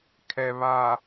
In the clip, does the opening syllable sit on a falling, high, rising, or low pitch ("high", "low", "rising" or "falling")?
low